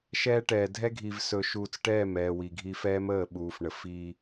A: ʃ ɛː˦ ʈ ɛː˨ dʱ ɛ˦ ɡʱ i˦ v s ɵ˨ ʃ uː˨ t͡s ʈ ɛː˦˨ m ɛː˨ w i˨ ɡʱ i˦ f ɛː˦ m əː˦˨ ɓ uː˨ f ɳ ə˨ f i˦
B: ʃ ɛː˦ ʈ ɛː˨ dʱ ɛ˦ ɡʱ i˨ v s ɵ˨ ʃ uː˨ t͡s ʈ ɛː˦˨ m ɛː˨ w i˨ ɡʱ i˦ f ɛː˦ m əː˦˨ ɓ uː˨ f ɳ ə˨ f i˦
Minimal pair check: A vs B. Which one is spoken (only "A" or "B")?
B